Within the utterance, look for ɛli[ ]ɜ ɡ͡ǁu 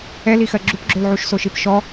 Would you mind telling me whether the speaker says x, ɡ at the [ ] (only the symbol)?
x